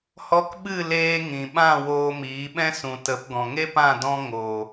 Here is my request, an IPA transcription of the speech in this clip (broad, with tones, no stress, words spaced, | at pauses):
hɔ˧kɓɨ˦˨ leː˧ ŋĩ˨ ɓã˦˨ woː˧miː˨˦ ɓɛ̃˦sũ˨tə˨˦p ɡɔ̃˨ŋe˦pã˦˨ dɔ̃˦ ŋoː˨